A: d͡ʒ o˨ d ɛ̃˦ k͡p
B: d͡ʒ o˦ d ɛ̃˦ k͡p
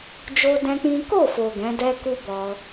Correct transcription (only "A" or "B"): B